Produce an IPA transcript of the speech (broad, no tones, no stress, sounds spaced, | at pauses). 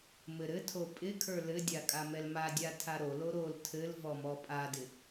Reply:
m ɘ ɾ ɘ tʰ o pʼ ɪ kʰ ə˞ l ɘ dʲ a kʼ a m ɛ l m a dʲ a tʰ a ɾ o l o ɾ o l tʰ ɘ l v ɔ m ɔ pʼ a d ɪ